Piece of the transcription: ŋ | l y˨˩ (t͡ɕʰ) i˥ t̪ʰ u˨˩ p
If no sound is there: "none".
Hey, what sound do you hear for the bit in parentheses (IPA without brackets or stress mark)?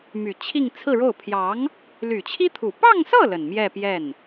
t͡ɕʰ